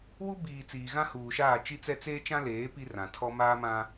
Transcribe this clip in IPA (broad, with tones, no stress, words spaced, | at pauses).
wu˦ biː˨ t͡siː˨ɣã˦huː˨ʃaː˦˨ t͡ʃi˦t͡sɛ˦ t͡seː˦t͡ʃã˦leː˨˦ pi˦rã˨tʰɔ˦ maː˦mã˦